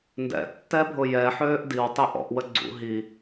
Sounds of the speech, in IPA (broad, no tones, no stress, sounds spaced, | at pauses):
n d ɛ̰ tː ɛ bʱ ʊ j ɛ ħ øː ʔ d i w tˤ ɛ ʔ ɔ̰ ʔ w ə ɡ͡ǀ ṵ ɦ i